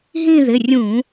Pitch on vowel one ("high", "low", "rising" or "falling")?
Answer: falling